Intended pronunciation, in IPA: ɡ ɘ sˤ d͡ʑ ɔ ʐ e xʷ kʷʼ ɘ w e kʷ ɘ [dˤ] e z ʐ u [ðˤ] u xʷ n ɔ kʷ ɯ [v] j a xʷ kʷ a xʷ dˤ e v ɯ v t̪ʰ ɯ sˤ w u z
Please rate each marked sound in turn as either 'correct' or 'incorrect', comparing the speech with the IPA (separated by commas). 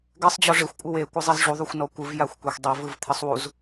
incorrect, correct, correct